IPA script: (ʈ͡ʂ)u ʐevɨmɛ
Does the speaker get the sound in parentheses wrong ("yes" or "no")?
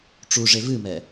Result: no